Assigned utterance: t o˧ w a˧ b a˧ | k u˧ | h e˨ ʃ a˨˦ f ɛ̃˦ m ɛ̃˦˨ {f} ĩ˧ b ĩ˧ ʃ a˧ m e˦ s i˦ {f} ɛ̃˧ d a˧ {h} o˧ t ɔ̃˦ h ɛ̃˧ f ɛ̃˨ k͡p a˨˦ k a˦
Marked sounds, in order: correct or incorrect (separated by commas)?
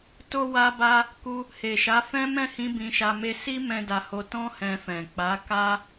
incorrect, incorrect, correct